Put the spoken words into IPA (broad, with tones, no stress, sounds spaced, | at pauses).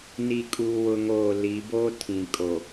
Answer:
n i˦ kʼ uː˦ w ʊ˦ ŋ oː˦˨ l i˨˦ b oː˦ tʰ ĩ˨ kʼ o˨